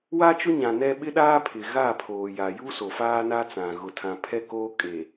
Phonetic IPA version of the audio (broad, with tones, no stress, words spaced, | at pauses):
wa˦t͡ʃʊ˦ɲã˨ nɛ˦ ɓɪ˦ɗaː˦pʰɪ˨ ɣa˦˨pʰoː˨ja˨ ju˦ so˨faː˦na˦t͡sã˨ ɣʊ˨tʰã˨pʰɛ˦koː˦ kʼe˨